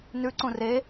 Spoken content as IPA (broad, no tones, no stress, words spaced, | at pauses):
nʉǀũ re